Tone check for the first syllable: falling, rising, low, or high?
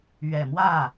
low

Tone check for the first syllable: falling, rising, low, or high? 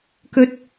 high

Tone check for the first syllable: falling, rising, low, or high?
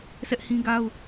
high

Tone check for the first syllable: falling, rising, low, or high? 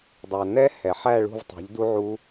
low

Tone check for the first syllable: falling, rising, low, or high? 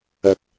rising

